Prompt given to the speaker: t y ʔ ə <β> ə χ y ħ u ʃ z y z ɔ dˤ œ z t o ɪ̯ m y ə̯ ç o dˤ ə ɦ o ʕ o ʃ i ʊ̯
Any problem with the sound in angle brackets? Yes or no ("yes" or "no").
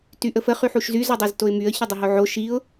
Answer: yes